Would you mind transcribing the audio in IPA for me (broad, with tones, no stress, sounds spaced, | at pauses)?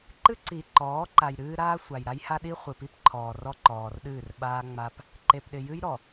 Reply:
ǃ ɨ˦ ǀ i˨ ǃ ɔː˨˦ ǃ a˨ j ɾ ɨː˦ ɾ aː˦ sʷ a˨ j ɾ a˦ j h a˦ ɗ i˦ χʷ ɨ˨ p i˦ p ǃʰ ɔː˨ r ɔ˦ ǃ ɔː˨ r ɗ ɨː˦˨ r ɓ aː˦ ŋ͡m a˦ p | ǃ e˨ p ɗ ɪ˨ j ɨ˦ j ɾ ɔ˨